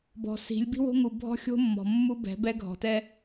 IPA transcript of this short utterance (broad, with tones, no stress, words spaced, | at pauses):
bɔ̤˨si̤˨˦lʲ bi̤˦wo̤˦ŋu˨bʱɔ̤˦ xʲo̤˦mːɔ̤˨ mːu˦bɛ̤˨˦bɛ˦ ɡʱɔ̤˨tɛ˦